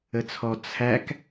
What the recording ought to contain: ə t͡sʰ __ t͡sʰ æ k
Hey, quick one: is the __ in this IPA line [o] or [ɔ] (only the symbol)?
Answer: ɔ